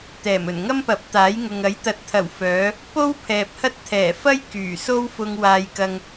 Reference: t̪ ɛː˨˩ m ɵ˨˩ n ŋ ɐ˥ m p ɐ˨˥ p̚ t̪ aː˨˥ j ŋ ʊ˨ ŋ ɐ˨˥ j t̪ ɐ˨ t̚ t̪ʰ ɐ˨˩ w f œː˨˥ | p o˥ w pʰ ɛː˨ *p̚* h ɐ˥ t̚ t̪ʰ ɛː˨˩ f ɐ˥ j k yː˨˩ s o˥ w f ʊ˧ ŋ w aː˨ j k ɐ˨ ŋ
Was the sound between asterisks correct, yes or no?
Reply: yes